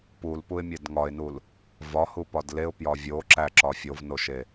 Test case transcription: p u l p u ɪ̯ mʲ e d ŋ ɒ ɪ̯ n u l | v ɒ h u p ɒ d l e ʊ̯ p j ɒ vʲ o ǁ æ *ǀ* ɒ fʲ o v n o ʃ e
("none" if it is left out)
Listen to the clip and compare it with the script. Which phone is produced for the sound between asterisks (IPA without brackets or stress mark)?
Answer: ǁ